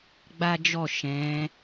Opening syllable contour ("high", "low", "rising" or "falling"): high